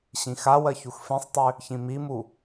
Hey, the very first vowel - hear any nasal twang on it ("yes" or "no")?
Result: yes